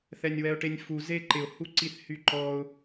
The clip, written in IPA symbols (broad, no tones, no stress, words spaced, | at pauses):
θɛnʲwɛʊ̯ʈenʲfu zeǃɪʊ̯ huǀiθhyǃɔʊ̯